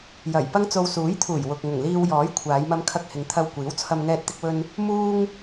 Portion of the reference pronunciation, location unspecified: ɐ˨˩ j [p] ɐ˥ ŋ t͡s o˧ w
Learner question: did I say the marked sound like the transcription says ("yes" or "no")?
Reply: yes